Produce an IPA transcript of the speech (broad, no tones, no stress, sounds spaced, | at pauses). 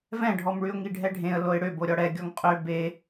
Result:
v ɛ̃ ɖʱ ɔ m ɭ y ʊ̯ ŋ i ɖʱ ɛ ɖʱ ẽ ə̯ l o ɪ̯ ɽ ø b o ɾʲ ɔ ɽ ɛ ɡʲ ɔ ŋ qʼ ø b e